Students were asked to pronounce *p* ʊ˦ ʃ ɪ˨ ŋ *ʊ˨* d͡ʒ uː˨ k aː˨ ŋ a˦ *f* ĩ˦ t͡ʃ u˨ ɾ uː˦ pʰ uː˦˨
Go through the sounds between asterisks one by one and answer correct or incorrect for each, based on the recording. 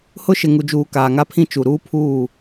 incorrect: h, incorrect: u˨, incorrect: pʰ

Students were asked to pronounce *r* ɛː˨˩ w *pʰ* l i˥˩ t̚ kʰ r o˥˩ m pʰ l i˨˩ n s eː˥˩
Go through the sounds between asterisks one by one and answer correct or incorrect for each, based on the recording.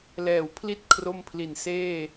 incorrect: l, correct

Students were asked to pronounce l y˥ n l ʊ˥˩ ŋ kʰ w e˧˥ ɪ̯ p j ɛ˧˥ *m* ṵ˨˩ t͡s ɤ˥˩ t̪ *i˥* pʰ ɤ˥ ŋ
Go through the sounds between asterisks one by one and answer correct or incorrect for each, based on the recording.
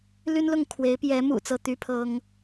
correct, incorrect: y˥

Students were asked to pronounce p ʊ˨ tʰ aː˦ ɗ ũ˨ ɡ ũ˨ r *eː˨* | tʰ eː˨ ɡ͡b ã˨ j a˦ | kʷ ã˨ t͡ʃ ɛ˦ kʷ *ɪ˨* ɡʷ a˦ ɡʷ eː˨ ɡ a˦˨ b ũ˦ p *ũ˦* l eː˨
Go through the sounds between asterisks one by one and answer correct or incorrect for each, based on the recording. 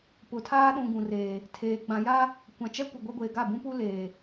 correct, correct, incorrect: u˦

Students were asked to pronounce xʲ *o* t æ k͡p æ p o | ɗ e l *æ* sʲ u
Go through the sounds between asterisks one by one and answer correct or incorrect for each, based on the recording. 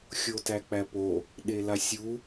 correct, incorrect: a

